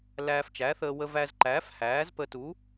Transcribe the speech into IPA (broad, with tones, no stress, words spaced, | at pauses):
læː˧ft͡ʃæ˨˥θəː˧ wə˧væ˧zǃæː˨˥f hæː˨˥zpə˧tu˨˥